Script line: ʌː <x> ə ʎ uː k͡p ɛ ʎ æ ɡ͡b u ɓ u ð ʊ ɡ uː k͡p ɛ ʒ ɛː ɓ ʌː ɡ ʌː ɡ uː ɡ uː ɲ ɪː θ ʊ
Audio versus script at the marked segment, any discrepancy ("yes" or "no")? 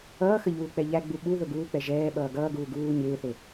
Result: no